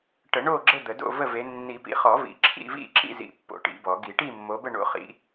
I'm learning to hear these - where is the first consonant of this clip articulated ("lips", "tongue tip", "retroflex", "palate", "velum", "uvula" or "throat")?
retroflex